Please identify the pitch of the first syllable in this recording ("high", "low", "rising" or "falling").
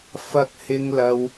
low